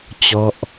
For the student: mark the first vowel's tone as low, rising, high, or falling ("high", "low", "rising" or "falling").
falling